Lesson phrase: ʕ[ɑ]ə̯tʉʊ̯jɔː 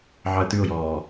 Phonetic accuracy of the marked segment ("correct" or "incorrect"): correct